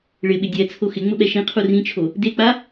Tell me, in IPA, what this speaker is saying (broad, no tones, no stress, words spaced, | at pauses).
ɭɪɓɪ dʲɛ t͡sʰoxɪŋ͡mʊ ɓɛʃĩqʰu rĩt͡ʃʰo | dek͡pa